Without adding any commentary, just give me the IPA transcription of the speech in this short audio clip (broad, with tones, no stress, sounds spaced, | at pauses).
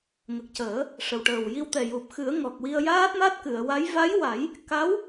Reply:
ŋ ə˨˩ k̚ c əː˨˩˦ | ʂ ə˨˩ w ʈ əː˨˩ w j i˧ w t̪ ɛ˨˩ j u˨˩ p̚ x ɨ˨˩˦ ə̯ ŋ ɔ˨˩ k̚ w i˧ ə̯ j aː˦˥ t̚ m a˦˥ t̚ k ɨ˨˩˨ ə̯ w a˧˥ j v a˧˥ j w a˨˩˦ j | k a˧˥ w